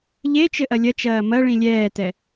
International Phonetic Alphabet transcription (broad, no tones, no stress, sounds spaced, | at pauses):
ʎ e t͡ʃ ɘ ʔ ɐ lʲ ɐ t͡ʃ ɐː m ɐ ɭ ĩ lʲ ɛː t ɛ